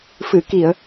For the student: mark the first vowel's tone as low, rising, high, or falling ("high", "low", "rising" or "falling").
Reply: low